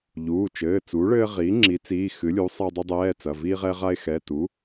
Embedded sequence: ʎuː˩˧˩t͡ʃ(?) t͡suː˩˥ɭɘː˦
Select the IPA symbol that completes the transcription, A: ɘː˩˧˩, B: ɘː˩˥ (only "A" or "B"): A